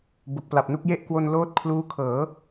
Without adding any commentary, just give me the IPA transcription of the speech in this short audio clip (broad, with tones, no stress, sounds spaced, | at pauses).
b o˨˩ k̚ p l a˨˩ p̚ n u˥˩ k̚ j e˥˩ ʔ k w o˧ n l oː˦˥ t̚ kʰ l uː˦˥ kʰ ɤː˩˦